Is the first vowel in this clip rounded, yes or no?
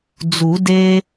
yes